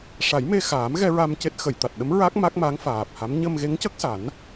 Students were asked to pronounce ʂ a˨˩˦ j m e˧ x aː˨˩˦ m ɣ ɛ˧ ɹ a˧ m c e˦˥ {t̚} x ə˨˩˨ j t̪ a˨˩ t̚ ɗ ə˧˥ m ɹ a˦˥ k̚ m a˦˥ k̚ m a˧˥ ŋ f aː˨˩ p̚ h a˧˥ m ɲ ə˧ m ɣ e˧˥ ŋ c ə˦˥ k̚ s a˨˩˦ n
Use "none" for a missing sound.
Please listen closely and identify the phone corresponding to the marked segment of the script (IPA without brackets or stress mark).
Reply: t̚